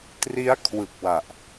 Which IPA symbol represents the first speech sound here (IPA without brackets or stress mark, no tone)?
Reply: t